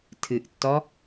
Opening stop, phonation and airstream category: aspirated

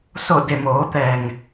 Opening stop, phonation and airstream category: plain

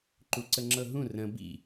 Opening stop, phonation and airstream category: click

